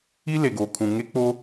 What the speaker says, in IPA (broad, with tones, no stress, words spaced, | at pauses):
i˦ le˨ɡoː˨kʰũ˨ ŋe˦k͡po˦